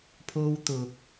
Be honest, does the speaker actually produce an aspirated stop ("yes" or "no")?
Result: yes